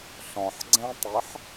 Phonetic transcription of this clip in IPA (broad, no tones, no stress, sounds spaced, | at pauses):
ɬ ɔ̃ ħ ɡ͡ǀ ɛ̃ tˤ e ħ